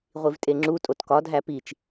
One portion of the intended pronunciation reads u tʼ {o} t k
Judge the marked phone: correct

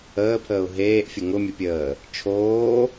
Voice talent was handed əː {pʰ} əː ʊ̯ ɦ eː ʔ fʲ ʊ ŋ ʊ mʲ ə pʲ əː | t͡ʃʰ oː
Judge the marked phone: correct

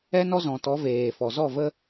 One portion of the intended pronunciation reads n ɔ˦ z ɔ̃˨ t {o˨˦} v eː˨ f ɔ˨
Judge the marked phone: incorrect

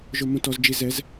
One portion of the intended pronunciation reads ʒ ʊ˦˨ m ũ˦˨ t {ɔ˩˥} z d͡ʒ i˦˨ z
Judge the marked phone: correct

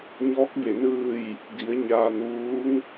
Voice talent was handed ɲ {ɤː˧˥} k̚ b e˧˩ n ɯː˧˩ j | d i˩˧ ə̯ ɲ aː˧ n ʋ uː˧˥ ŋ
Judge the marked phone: incorrect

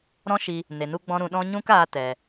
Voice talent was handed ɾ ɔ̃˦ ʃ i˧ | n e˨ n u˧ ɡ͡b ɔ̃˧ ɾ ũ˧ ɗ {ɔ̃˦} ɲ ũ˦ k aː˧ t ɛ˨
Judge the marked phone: correct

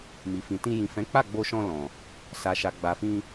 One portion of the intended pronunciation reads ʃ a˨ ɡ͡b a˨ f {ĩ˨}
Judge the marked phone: incorrect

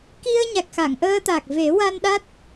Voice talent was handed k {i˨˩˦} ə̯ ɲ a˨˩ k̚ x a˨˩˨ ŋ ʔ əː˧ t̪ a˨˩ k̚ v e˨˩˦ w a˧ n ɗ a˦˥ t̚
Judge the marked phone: incorrect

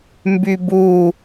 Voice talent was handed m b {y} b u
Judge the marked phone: correct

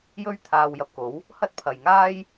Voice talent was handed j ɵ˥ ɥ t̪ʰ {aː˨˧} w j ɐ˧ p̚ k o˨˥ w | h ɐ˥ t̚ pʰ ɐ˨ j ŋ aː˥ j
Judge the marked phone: incorrect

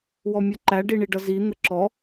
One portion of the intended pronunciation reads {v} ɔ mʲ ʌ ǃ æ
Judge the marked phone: incorrect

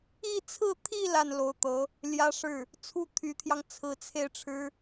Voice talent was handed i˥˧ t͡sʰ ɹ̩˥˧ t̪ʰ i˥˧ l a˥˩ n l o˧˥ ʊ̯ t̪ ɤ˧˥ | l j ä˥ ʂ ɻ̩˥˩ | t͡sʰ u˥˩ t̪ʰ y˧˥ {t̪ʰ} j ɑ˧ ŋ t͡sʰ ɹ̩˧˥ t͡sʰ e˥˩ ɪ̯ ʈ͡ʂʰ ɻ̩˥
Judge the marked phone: correct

